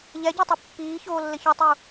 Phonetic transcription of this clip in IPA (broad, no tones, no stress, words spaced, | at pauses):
ʎɛɟotˤɐ pːiːçoːlːɘ çɔtˤu